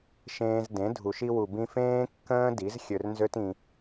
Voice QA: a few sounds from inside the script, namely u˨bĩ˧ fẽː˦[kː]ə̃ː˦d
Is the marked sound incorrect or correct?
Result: correct